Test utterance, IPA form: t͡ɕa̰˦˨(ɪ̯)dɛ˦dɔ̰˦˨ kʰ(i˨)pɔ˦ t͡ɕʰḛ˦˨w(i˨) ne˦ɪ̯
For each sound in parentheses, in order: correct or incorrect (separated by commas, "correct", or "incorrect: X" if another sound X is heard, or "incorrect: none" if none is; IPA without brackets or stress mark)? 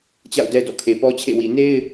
incorrect: ʊ̯, incorrect: e˨, correct